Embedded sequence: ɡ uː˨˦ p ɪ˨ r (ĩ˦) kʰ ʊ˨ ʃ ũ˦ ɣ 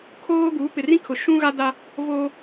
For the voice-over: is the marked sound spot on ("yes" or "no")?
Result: yes